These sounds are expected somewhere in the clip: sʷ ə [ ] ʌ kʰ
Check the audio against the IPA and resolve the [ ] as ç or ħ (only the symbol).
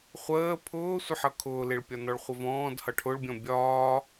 ħ